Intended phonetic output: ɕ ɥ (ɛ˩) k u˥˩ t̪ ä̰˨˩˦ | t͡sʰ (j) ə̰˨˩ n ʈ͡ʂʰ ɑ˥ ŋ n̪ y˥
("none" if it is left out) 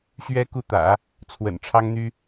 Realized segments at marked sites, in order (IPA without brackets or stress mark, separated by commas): ɛ˥, w